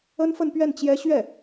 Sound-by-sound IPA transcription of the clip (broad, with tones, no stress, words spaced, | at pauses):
ə˥nfə˥˧npɥɛ˥˩n t͡ɕjɛ˥ ɕɥɛ˥˩